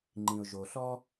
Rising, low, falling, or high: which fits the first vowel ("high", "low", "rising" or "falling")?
low